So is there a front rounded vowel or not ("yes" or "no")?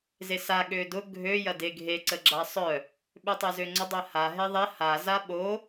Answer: yes